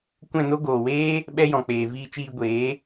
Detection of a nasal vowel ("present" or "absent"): present